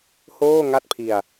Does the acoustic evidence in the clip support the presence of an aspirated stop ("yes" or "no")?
yes